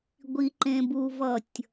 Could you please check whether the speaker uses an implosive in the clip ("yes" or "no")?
no